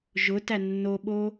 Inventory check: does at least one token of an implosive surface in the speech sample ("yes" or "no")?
yes